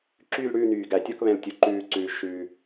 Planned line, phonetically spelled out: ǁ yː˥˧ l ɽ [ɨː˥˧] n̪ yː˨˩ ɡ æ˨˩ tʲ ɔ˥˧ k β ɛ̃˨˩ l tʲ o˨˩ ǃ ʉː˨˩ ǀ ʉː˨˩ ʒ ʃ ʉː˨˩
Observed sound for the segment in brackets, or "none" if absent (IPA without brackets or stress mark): ʉː˥˧